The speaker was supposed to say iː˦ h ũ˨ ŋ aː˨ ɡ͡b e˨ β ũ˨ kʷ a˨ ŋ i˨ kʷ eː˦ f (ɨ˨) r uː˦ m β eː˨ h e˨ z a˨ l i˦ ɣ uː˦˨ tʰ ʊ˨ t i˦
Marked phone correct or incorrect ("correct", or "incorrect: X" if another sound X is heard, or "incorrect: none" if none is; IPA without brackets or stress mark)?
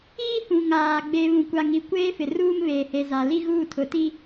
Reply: incorrect: ɪ˨